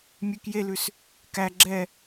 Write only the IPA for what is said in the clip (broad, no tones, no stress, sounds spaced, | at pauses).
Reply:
mʲ ʉ k j e l ʉ s | k æ ɡ͡ǁ ɛ